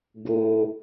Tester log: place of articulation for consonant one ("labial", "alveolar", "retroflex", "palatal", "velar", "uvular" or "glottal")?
velar